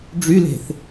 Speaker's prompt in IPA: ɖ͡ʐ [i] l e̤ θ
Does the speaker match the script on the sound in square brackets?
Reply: no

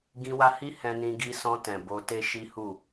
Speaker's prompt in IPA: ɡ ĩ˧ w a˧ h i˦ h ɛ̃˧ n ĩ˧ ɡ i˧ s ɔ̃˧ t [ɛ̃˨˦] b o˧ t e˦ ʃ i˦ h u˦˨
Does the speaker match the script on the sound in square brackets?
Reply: no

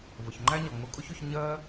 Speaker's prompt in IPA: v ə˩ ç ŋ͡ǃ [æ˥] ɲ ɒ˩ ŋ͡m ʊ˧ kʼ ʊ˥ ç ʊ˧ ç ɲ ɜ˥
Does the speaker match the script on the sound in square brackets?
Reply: yes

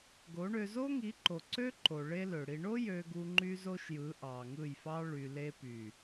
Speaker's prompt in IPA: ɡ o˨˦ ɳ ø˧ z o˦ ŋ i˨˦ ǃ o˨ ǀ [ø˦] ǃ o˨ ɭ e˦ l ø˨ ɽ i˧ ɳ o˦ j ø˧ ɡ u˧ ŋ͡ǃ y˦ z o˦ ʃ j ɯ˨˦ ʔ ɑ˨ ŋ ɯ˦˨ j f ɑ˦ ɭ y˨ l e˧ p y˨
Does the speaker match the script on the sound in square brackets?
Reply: yes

